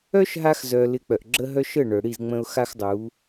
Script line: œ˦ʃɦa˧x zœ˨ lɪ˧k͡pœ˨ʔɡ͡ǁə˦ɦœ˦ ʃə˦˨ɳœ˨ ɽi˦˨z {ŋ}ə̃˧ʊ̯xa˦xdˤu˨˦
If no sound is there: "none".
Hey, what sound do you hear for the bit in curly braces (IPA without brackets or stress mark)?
ŋ͡m